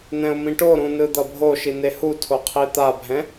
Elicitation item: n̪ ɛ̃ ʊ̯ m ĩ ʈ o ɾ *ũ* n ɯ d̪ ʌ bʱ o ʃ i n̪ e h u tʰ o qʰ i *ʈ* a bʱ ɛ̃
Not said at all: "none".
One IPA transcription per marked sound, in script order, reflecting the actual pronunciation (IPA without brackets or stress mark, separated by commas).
ũ, t̪